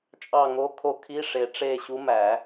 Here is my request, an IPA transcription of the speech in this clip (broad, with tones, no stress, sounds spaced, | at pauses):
t͡ʃʼ ɑ˦˨ ŋ o˧˥ kʰ o˧˥ kʰ i˧˥˧ ʂ e˨˩˦ ʈ͡ʂ e˦˨ ɕ u˧˥ m æ˨˩˦